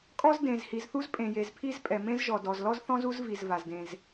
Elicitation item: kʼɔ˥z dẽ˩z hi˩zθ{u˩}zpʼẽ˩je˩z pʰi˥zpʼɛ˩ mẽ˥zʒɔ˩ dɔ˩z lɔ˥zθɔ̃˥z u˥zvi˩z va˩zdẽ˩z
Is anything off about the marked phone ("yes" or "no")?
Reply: yes